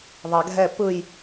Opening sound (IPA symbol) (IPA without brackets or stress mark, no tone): ðˤ